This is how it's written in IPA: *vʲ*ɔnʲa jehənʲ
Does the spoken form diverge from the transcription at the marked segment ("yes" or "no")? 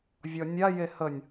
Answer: no